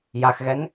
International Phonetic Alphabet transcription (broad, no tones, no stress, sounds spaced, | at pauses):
j a x ɣ ɛ n